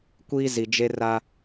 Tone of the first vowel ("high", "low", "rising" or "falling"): high